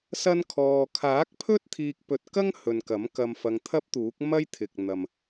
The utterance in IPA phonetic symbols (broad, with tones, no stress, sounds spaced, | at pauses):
s ɐ˥ n kʰ ɔː˧ kʰ aː˨˥ k̚ pʰ ɵ˥ t̚ t̪ʰ iː˧ k̚ p ɵ˧ t̚ k ɐ˥ ŋ h ɵ˨ n k ɐ˨˥ m k ɐ˧ m f ɐ˧ ŋ t̪ʰ ɐ˥ p̚ t̪ uː˨˥ k̚ m ɐ˥ j t̪ʰ ɪ˨ k̚ n̪ ɐ˨ m